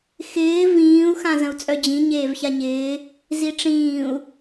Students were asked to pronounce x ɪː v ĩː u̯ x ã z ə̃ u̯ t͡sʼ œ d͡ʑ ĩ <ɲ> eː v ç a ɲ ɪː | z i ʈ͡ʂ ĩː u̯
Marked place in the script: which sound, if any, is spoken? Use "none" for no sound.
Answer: ɲ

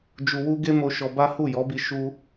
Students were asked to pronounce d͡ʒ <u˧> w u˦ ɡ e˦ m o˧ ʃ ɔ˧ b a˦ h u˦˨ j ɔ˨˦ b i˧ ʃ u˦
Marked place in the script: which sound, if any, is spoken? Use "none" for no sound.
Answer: u˧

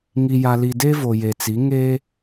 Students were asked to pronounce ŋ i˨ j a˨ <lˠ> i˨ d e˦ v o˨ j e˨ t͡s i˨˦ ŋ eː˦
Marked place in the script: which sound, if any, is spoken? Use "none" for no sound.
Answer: l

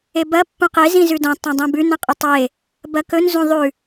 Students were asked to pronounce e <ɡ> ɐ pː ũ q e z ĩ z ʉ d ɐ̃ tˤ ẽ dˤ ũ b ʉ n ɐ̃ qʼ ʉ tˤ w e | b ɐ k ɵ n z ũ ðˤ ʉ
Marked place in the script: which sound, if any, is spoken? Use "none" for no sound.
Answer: b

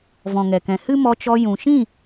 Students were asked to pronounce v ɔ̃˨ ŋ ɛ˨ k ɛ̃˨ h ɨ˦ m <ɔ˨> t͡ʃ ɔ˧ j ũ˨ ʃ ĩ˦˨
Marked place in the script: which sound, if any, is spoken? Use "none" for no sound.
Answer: ɔ˧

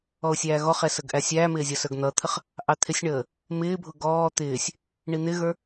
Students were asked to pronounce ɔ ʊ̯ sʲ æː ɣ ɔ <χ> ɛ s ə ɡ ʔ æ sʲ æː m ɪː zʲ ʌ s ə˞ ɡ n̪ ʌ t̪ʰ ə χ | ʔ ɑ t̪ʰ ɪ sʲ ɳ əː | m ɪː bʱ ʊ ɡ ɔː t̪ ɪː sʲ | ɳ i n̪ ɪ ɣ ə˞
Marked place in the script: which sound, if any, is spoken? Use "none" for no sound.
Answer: χ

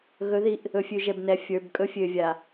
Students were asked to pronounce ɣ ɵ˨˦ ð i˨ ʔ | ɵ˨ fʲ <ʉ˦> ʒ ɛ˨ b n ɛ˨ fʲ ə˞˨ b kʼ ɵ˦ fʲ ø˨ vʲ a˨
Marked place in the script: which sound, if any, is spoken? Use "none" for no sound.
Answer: ʉ˨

